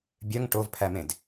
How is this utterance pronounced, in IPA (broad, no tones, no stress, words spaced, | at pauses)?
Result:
bʲœŋ ʈovpʰæmẽd